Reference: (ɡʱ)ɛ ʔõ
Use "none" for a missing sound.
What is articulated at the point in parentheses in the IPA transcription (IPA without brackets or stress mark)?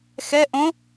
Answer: x